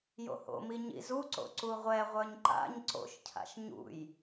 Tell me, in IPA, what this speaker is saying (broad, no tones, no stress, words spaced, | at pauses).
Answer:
jo̰ho̰mi ɲḭzuǀo̰ ǀuʁʷɛʁʷœɲ ǃa̰ɲ ǀo̰ʃcʰa̰ʃ ɲṵj